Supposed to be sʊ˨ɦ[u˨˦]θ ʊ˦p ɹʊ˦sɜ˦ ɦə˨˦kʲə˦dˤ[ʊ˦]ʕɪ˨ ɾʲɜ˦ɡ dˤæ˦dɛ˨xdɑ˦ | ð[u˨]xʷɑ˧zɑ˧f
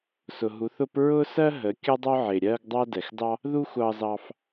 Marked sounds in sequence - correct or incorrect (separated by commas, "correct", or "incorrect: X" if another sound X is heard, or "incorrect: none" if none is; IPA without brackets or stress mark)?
correct, correct, incorrect: u˦